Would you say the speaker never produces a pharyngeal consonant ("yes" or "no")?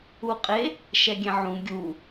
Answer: no